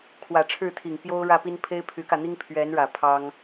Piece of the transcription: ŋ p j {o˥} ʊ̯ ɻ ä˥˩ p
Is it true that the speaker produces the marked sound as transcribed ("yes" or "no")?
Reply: yes